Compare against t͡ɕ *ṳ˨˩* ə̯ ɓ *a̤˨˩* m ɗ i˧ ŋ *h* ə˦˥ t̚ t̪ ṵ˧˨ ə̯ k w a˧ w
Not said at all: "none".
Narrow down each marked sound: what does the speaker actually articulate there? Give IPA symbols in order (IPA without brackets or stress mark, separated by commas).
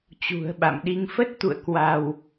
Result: ṳ˨˩, a̰˧˨, f